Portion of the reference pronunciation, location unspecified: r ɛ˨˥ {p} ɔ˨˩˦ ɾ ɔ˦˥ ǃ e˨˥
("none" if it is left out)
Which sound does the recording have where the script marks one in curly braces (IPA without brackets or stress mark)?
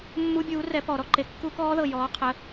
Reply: p